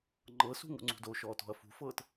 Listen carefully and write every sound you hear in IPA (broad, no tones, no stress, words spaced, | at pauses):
ŋ͡ǃɤsṳ ŋṵŋ͡ǀṳdoʃɔːt ɔ̤ɐ̯fṳfɤːt